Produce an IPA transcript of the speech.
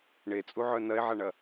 ɳ e t͡sʼ u ʕ œ n ɐ e̯ ʕ a ɳ ɐ

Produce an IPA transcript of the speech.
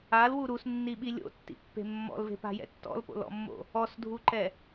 a l w u ɾ u s nː i ɓ i lʲ o̰ tː ḭ pː e̤ mː ɔ̰ l v e̤ p a̤ j ɛ̰ tː ɔ̰ l p o̰ l ɔ̰ mː o̰ | ɔ s dʱ u ǃ ɛ

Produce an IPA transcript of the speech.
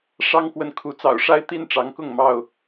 ʂ ɑ˦ ŋ k w ə˨ n kʰ u˨˦ t͡s ɑ̰˨˩ ʊ̯ ʂ a˦ ɪ̯ t̪ i˥˨ n ʈ͡ʂ ɑ˨˦ ŋ k ʊ˥˨ ŋ m ɑ˥˨ ʊ̯

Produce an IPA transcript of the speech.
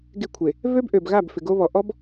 ɡ e˦˨ kʷʰ e˨ | v ø˦ b ʔ ø˨ b ɣ a˦˨ b f ɪ˨ ɡ o˦ β ɔ˨ ʔ ɔ˦ b

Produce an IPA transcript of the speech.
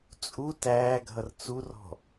t͡sʼ u t æː ɡʱ ʌ r t͡s u r ɔ̤

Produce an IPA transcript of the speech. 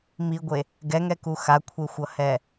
m i ɡʷ e | ɡ ɛ ŋ ɛ k u x a kʷʰ e xʷ ʌ h ɛ

